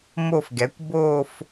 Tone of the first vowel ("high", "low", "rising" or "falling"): falling